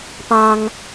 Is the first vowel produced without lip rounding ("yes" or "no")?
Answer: yes